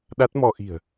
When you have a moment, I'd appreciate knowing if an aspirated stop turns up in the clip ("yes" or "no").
no